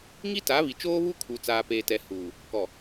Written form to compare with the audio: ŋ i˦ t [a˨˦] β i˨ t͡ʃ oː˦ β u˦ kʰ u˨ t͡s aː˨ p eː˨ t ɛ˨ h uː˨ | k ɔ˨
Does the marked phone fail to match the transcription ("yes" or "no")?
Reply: no